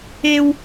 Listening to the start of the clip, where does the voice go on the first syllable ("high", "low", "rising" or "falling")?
high